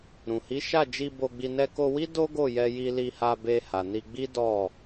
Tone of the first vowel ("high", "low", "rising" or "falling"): low